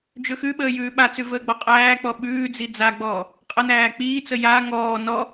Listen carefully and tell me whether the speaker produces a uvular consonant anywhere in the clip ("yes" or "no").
yes